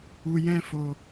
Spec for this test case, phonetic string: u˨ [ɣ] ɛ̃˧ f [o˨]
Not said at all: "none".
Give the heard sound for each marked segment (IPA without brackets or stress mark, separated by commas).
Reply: j, o˨